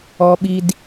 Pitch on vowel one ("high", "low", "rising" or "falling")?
high